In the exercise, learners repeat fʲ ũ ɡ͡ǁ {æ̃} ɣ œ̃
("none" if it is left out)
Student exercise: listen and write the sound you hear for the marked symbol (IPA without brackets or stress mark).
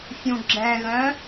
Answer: ɛ̃